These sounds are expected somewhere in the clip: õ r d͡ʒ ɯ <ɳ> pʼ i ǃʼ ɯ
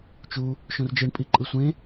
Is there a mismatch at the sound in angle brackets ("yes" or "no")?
no